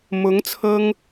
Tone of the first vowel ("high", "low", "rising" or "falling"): rising